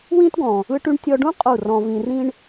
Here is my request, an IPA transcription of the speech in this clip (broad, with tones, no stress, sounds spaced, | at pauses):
w ĩː˦ t ɡ ɔ̃˨ | ɯ˦ ʈ y˦ ɳ tʲ ɔ˧ ɖ ũ˦ qʼ u˦˨ r ɔ̃˧ v ĩ˧ r ĩ˦ ɳ